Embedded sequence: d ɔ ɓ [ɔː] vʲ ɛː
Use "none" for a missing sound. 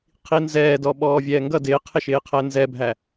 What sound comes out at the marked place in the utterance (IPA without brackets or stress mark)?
ɔː